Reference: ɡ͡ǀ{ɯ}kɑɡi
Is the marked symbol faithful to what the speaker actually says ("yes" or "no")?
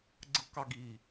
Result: yes